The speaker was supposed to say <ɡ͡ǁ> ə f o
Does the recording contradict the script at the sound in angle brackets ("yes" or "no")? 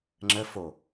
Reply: yes